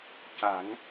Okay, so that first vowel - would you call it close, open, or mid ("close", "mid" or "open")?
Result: open